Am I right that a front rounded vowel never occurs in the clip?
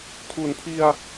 yes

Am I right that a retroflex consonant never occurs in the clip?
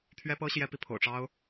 no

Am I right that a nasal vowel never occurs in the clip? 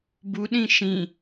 no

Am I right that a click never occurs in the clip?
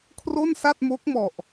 yes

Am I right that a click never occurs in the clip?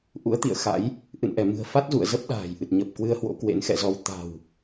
yes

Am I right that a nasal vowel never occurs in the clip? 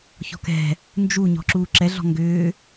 yes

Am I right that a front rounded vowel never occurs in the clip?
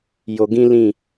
yes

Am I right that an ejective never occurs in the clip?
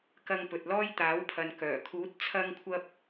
yes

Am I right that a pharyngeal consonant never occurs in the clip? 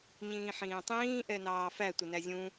no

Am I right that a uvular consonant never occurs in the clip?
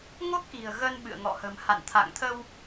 yes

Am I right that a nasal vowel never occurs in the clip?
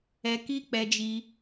yes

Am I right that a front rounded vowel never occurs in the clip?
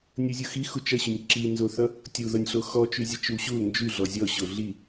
no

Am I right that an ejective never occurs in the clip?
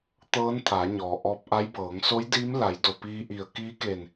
yes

